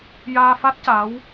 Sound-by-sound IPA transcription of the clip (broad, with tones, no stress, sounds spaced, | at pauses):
j aː˧ f a˦˥ t̚ c a˧˥ w